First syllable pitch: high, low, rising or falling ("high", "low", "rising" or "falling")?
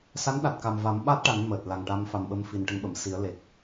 rising